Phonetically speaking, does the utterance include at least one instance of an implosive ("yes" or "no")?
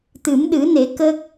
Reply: yes